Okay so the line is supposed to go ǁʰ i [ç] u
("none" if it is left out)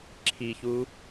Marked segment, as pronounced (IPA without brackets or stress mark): ç